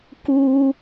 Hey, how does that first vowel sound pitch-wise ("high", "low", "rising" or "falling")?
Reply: high